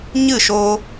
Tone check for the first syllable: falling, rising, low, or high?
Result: falling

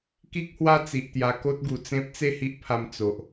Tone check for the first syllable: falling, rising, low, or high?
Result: high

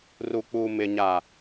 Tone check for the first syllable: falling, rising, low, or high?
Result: low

